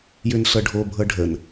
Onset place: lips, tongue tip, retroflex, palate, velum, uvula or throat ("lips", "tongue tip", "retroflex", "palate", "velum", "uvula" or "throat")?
palate